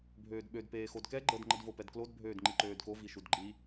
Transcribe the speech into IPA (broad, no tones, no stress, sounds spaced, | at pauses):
bʱ øː d ɓ ø d p eː x o d k ɛ ɡ͡ǃ ə d ŋ͡ǃ ə d v o p ɛ d k l o d bʱ øː d ŋ͡ǃ i ǃ øː d k o v i ʃ u d ɡ͡ǃ i